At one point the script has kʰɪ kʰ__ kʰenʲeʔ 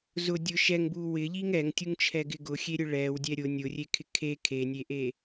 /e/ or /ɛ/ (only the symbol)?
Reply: e